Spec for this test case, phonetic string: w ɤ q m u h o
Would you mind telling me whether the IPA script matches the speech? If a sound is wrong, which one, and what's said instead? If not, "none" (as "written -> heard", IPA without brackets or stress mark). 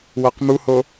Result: none